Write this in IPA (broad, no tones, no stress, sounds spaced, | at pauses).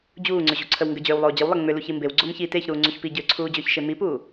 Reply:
d͡ʑ uː ŋ͡ǀ ʏ ʑ u ǀʰ ə w ŋ ɡ ə d͡ʑ ʏː w lˠ oː d͡ʑ ə w lˠ e ŋ͡m ʏ l u ç i m b e w ɡ͡ǀ o m ç i t e ç ɾ uː ŋ͡ǀ u ç p i ɟ ʏː ǀʰ uː d͡ʑ ʏː ç ʃ e m i p uː